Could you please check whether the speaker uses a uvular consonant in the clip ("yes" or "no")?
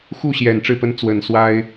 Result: no